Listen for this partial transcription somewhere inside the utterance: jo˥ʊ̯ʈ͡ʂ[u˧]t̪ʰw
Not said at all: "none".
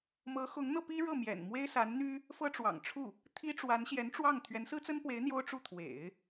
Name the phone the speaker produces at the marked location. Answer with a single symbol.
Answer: u˥˩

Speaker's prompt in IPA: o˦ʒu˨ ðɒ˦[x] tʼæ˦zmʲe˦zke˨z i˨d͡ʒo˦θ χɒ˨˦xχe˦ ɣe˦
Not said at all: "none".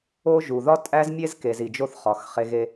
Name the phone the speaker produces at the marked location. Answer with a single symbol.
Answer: none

